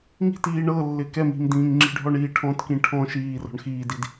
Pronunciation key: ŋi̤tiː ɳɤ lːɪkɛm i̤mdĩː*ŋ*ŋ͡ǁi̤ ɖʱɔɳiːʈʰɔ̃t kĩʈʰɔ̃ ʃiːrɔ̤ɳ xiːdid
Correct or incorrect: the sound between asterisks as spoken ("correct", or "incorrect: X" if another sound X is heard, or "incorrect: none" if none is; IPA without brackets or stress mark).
correct